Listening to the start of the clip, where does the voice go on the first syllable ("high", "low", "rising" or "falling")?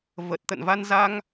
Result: low